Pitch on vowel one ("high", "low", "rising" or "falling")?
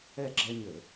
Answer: falling